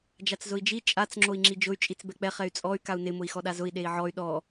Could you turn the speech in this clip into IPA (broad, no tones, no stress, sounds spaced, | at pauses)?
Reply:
d͡ʒ a t͡s z ʊ i̯ d͡ʒ i t͡ʃʼ a t͡s ŋ͡ǁ o i̯ ŋ͡ǁ i d͡ʒ ʊ y̯ t͡ʃʼ i t͡s b ɛ k͡p ɛ χ ɛ y̯ t͡sʼ ɔ y̯ k a u̯ n ɪ m ʊ i̯ x ɔ ɗ a z ʊ i̯ ɗ e i̯ ʕ ɔ y̯ ɗ ɔ